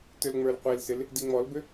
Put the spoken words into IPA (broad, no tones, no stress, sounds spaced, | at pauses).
t ʏ l ŋ͡m ə˞ l qʷ i l s ɪ l | d i ŋ͡m ɔ l b ʏ